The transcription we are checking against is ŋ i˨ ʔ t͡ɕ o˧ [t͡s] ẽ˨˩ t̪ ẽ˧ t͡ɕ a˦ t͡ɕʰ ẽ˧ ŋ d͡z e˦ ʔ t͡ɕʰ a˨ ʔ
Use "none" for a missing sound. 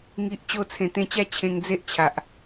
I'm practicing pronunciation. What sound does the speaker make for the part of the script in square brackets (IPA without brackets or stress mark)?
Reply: t͡sʰ